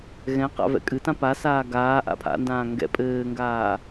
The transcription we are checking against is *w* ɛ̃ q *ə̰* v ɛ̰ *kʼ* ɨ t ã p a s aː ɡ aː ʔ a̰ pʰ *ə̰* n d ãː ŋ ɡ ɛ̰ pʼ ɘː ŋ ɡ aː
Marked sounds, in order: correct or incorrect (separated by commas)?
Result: incorrect, incorrect, correct, incorrect